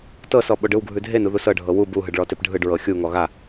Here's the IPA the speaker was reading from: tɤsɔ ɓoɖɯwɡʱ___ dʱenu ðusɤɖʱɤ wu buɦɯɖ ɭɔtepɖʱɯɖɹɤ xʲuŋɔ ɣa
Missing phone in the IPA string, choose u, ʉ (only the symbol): ʉ